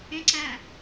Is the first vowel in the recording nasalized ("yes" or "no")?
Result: yes